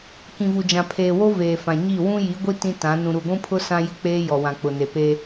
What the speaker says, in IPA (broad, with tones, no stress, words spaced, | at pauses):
kĩ˨vu˨ d͡ʒã˨pʰeː˨wo˦ veː˨fã˨ɲi˦˨ wũ˦ji˨˦ɡʷi˦ tĩ˦tã˨˦ nũ˨ɾu˨ɡʷũ˦pʰʊ˦ sã˦jɪ˦ k͡peː˦jɔ˨ wã˨k͡pʊ˨ne˨ pe˦